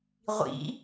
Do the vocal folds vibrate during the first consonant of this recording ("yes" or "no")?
yes